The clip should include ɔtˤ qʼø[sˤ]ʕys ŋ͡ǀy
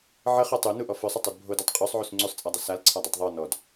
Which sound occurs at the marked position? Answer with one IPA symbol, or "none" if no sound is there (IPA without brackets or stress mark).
sˤ